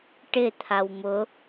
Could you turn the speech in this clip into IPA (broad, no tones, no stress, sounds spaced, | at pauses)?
ʈ ɪ t̪ʰ a w m ʊ